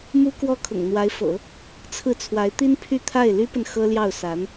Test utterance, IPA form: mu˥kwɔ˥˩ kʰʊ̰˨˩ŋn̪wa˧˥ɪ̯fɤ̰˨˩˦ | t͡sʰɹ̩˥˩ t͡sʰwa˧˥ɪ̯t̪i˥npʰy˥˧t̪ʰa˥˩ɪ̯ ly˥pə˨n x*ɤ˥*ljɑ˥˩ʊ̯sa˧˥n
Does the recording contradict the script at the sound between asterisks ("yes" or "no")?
no